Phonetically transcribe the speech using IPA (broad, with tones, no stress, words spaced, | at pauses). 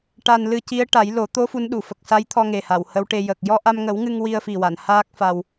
ʈa˧n lɨ˧ci˧˥ə̯ ʈa˨˩˦jlo˨˩˦ t̪o˧˥ fu˧˥nɗu˨˩˨fə˨˩k̚ sa˧˥jt̪ʰɔ˧ŋe˨˩ ha˨˩˨whə˧˥wʈe˧ jə˨˩k̚ jɔ˧ʔa˧mŋə˨˩˦wŋɨ˧ŋ wi˧ə̯fi˨˩wa˨˩˨n haː˦˥k̚fa˧w